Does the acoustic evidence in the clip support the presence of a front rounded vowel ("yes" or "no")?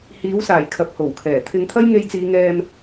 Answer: no